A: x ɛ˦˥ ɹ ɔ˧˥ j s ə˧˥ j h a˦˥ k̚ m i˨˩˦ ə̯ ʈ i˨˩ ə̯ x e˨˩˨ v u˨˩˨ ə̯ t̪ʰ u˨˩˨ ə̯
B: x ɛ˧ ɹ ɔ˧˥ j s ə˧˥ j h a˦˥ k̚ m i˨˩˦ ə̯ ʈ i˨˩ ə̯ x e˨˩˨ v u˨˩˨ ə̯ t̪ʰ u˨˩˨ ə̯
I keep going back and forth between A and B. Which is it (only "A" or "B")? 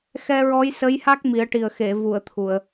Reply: B